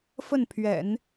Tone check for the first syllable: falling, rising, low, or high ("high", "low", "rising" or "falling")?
falling